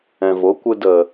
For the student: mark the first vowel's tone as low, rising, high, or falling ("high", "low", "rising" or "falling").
low